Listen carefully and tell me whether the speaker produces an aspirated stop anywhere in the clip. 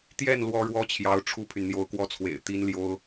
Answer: yes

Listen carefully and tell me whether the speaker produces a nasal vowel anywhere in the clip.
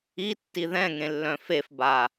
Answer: yes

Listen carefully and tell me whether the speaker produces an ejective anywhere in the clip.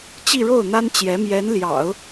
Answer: no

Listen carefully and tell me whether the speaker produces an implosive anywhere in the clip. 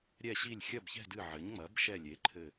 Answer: no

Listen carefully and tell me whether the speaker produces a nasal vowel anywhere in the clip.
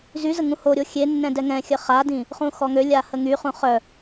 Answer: yes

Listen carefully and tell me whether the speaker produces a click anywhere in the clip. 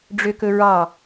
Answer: no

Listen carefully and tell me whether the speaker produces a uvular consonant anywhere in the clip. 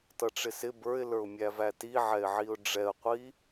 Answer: yes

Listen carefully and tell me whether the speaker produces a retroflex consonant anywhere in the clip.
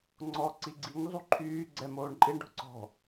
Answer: yes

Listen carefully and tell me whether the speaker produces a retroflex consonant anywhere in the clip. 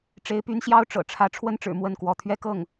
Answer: yes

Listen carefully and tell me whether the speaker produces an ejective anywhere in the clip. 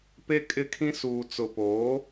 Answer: yes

